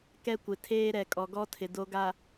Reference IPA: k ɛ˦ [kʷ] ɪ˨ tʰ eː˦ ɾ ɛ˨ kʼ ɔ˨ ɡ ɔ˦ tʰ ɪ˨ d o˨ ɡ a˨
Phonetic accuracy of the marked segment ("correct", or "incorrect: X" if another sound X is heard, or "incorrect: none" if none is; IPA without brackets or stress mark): correct